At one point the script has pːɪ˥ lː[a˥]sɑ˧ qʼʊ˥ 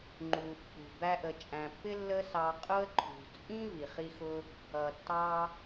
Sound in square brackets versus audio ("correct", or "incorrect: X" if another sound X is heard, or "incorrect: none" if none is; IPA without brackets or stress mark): incorrect: ə˥